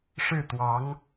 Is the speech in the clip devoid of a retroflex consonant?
no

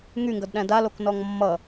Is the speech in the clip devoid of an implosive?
no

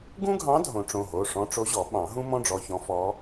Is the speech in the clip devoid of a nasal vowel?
no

